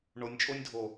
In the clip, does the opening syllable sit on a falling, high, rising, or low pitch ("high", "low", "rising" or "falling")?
rising